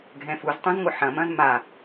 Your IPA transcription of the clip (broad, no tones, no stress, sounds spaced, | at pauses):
ɡʱ ɛ̃ f u z tˤ ũ z ŋʷ ɨ ħ ɐ̃ m ɐ̃ z m a